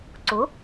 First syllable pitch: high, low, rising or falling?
rising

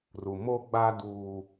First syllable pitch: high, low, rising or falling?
low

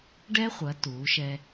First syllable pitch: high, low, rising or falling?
high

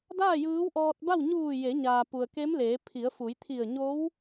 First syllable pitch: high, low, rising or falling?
falling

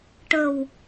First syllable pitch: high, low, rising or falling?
low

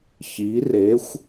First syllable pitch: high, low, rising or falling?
rising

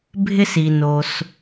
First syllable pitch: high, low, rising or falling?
high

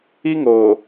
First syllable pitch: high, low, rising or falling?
high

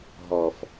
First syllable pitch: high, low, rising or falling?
low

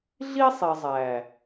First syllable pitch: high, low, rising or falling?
high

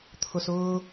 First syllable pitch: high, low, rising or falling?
low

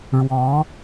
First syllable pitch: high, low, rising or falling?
rising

